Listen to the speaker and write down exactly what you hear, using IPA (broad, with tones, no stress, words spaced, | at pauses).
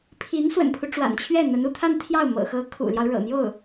pʰi˧˥n swə̰˨˩npʰu˦ ʈ͡ʂwa̰˨˩nt͡ɕʰɥɛ˥˩ n̪ə˧˥nu˧˥t̪ʰa˥˧nt̪ʰjɑ˥˩ʊ̯ mɤ̰˨˩xɤ˧˥ kʰṵ˨˩ljɑ˦ʊ̯ ɻɤ̰˨˩n̪jo˥˩ʊ̯